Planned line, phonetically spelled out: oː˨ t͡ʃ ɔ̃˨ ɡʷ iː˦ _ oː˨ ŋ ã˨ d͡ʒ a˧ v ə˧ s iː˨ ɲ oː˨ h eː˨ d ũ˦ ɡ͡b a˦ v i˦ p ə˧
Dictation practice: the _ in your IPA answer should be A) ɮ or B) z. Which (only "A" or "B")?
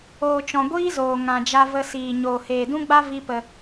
B